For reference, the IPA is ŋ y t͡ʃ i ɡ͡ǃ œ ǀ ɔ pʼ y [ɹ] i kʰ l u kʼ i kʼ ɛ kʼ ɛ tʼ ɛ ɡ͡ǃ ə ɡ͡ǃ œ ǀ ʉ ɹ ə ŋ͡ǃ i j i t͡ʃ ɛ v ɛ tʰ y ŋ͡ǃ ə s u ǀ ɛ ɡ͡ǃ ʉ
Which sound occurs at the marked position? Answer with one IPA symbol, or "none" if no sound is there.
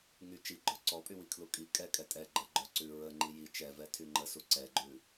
w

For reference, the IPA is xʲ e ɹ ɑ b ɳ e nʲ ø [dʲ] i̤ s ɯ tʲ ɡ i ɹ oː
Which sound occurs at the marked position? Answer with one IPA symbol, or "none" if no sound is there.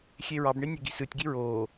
ɡ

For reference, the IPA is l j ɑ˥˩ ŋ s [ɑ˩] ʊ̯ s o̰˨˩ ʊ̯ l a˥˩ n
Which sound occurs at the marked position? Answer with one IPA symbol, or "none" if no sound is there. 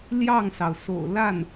ɑ˩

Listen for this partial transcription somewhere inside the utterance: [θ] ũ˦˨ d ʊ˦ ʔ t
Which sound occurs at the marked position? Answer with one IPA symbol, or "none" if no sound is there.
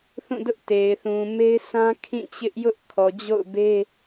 θ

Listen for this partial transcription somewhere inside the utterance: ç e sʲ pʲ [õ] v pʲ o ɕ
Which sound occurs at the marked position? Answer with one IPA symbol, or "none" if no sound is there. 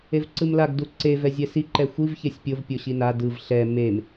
o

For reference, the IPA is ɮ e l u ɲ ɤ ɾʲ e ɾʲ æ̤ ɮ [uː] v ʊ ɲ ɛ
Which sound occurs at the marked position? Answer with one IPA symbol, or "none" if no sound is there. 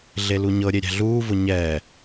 uː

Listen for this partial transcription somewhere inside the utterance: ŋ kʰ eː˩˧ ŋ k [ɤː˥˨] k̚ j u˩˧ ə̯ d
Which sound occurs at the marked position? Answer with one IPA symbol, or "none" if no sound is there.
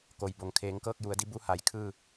ɤː˥˨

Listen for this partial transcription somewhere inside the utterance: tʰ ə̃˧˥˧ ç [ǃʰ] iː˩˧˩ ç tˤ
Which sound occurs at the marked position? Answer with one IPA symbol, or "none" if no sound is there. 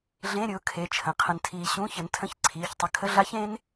ǀʰ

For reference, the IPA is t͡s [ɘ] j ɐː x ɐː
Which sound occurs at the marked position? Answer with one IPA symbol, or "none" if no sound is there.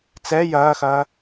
ɛ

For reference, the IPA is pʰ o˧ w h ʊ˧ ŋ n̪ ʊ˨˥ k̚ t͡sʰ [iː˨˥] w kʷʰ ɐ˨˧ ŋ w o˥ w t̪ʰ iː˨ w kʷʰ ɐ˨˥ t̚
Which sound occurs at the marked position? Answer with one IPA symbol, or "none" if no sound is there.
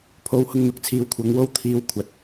iː˨˧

